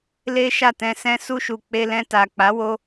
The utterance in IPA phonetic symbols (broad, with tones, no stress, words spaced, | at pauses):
le˦ʃa˦˨tɛ̃˧sɛ̃˦ su˧ʃu˨k͡pe˧ lɛ̃˧ta˨k͡pa˨˦ wo˦